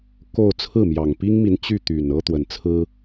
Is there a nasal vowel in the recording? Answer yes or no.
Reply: no